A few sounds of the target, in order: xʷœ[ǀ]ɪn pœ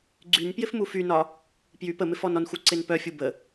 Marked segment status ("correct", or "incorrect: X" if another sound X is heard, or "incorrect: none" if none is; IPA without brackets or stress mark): correct